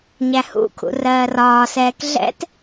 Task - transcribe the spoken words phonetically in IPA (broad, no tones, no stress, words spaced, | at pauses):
ɲæhṵkʰṵ rɜːrɒːsɛːk ɮɛ̰t